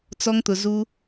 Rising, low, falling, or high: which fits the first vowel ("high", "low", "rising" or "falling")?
low